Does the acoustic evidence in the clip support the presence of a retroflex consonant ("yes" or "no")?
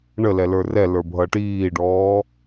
yes